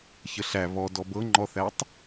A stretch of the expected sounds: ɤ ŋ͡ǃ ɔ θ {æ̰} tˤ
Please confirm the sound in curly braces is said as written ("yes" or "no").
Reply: no